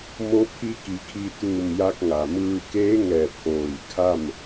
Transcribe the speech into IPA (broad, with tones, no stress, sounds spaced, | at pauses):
m o˧˥ pʰ i˧˥ k i˩˧ kʰ i˧ t̪ uː˧˩ m j a˧ k̚ ŋ a˩ m ɯː˧ k eː˧˥ ŋ ɛː˧˩ p̚ ʔ oː˧˩ j kʰ a˥˨ m